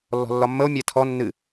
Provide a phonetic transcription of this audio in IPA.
lːɔ̤lːɒmːəo̯ mʲætʰɔ nːɨ

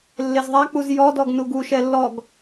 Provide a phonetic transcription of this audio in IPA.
lːezðˤak͡puz jɔdɔɡ nuɡuʃɛ lːɔɡ

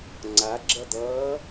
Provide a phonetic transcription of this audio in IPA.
ŋ͡ǀaɡ͡ǁʌd̪ʌː

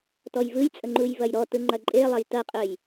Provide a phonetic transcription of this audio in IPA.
tɔjvɯjt͡sʼə ŋ͡ǃujvɐjɾɔtɯ ŋ͡ǃɐǃʼelˠɐj tɐqʼœj

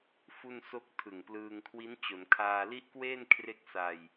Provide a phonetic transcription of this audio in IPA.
fu˥˩nso˥˩k̚ tʰɯ˨˩ŋplɯː˧ŋkʰwi˦˥n t͡ɕo˩˦nkʰaː˧li˥˩ʔ kweː˥˩nkʰre˦˥k̚ sa˧j

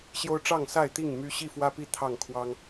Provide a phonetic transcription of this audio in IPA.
ɕjo˦ʊ̯ ʈ͡ʂɑ˥˨ŋsa˥˨ɪ̯t̪i˥˨ŋ my˦ ɕi˥˨fwä˦pi˦ t̪ʰɑ˥˨ŋkʰwɑ˦ŋ

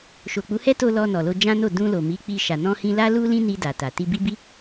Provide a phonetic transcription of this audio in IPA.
ʃo˨k͡pu˨˦hɛ˦to˧ lɔ˧ nɔ˨lo˧ d͡ʒã˦no˦˨ dũ˧lo˨mi˨˦ k͡pi˧ʃa˨ nɔ̃˧hĩ˧ la˦lu˦ lĩ˦ni˧ da˨ta˨ ti˧bi˦bi˦

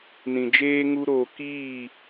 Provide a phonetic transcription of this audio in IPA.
nĩ˨d͡ʒeː˦ŋu˦ɾoː˧ kiː˦˨

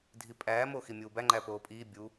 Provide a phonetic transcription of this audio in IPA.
dʱipʼæː moːximʲuːbæ ŋ͡ǃæpoːpʼiː bʲu

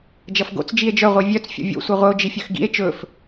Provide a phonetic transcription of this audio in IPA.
d͡ʒʌfɡo̰t͡s d͡ʒie̯d͡ʒœ ʁʷivʲœt͡s fʲo̰vʲo̰ sʷiʁʷɘo̯ d͡ʒifʲœxɡḭe̯ t͡ʃɵf

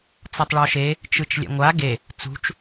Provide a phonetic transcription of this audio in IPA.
t͡sɔtˤɭɔʃe | t͡ʃɯt͡ʃlʲɛ̰ŋʷa ɡe | t͡sṳt͡ʃ

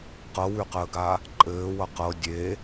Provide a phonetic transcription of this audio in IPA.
qɤwʉqəːɡa | ǃʼɘːwʌ qɤ dʲe

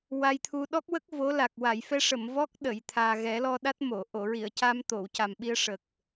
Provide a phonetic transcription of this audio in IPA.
wa˧jt̪ʰu˧ ɗɔ˦˥k̚wə˦˥k̚ vo˧˥la˨˩k̚ wa˨˩˨jfɛ˧ʂə˨˩˨m vɔ˦˥k̚ ɗə˨˩˨j t̪ʰaː˨˩ɣɛ˨˩˦lɔ˧ɗa˦˥t̚ mo˨˩˨ ʔo˨˩˨ɹi˨˩˨ə̯ca˧m t̪o˨˩˨wca˨˩mɓi˧ə̯ ʂə˨˩k̚

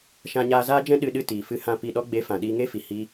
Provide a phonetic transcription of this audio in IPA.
ʃã˧ɲaː˧zaː˦d͡ʒɛ̃˦ ɗɨ˧ɗɨ˧ tiː˨fɨ˧hã˧ pi˨ɗɔ˧ɡ͡be˨˦ fã˨ɗiː˧ŋe˦fi˨ hi˦

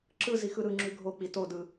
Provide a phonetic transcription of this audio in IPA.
ǁɯ zixɯɾɯŋ͡ǁʉ ɡʱok͡pi todɯ

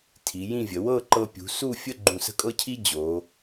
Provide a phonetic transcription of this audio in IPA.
tʰi˩˧jĩ˥˧vʲə˩˧ wɤ˥˧ǃɤ˧pʲṳ˩˧ su˥˧fʲə˥˧ ɡ͡ǃũ˧˩sə̤˥˧kʼɤ˥cʰi˥ d͡ʑo˩˧

